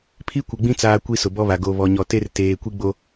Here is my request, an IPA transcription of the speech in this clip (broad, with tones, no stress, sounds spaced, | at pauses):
pʰ i˦ kʷ ɪ˨ ɡ͡b ĩ˦ t͡s aː˦ kʷ i˦ s ʊ˨ b ɔ˦ β a˨ ɡ o˨ β ɔ˨ ɲ ɔ˨ t e˦ r t eː˨ kʷ i˦ ɡ͡b o˦